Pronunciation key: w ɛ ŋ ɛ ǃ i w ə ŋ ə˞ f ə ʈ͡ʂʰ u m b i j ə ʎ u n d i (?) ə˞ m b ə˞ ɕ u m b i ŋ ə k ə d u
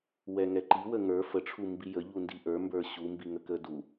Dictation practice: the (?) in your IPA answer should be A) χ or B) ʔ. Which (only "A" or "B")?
B